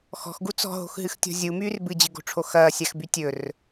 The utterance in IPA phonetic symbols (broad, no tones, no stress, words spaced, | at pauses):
xɔ̤xɡu t͡sɔ̤ɦo̤xɦɨxtʲɔ̤ zʲumyːr bɨd͡ʑɨɡo̤ʈ͡ʂʰo xɐːsʲaxby tʲɵr